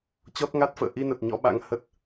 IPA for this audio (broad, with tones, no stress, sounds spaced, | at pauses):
t͡ɕ ɔ˦˥ t̚ ŋ a˦˥ t̚ f ə̰ː˧˨ ʔ i˧ n ə˨˩ t̚ ɲ ɔ̰˧˥ ɓ a̰˧˥ ŋ h ə˦˥ t̚